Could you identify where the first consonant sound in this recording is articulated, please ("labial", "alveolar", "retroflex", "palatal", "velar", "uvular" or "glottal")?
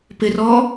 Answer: labial